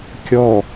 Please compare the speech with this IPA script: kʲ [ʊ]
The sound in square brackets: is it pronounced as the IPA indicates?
no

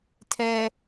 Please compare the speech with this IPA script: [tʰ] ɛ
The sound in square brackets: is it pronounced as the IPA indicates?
yes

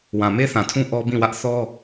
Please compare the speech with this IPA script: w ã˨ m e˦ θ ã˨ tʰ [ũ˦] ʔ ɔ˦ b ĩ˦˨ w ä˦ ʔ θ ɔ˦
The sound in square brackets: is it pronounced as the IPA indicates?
yes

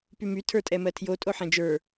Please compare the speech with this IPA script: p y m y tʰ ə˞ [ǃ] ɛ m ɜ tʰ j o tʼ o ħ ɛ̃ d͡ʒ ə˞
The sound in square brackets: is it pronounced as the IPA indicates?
no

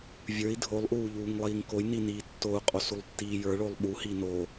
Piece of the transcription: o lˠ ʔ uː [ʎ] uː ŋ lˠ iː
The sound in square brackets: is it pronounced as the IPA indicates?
yes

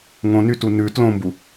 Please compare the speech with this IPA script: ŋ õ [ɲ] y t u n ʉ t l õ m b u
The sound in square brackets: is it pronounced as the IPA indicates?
no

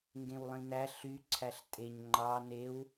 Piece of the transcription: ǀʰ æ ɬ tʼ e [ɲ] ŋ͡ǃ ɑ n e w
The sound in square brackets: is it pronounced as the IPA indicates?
yes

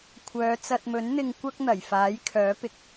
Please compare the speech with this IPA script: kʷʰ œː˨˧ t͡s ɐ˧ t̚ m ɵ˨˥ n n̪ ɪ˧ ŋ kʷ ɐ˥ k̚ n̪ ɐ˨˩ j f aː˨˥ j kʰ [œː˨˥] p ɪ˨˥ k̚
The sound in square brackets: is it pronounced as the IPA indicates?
yes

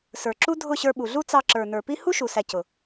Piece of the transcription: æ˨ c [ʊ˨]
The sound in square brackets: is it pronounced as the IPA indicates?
yes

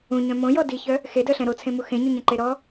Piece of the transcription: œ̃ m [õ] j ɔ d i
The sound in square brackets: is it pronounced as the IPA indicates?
yes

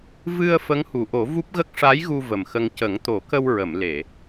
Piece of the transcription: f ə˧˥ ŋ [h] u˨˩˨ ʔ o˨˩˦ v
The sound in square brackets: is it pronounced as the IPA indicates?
yes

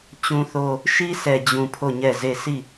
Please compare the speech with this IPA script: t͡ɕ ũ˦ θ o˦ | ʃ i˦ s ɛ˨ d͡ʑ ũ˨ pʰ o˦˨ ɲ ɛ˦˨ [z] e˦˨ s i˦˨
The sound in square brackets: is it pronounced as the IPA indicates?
yes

